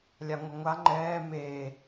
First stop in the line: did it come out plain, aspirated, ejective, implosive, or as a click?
click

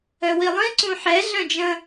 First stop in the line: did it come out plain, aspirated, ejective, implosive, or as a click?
click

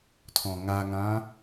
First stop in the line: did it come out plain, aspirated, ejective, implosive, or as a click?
aspirated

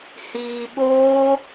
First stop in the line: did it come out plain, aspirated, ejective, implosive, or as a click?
implosive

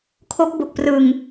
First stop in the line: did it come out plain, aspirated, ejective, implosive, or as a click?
aspirated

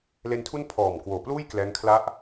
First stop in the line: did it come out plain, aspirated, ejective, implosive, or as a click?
aspirated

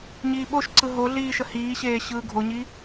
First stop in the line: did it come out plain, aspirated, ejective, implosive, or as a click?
implosive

